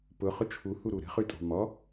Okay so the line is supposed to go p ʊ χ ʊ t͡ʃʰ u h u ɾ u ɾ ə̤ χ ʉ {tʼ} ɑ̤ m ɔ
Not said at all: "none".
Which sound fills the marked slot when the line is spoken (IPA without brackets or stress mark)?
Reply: tʼ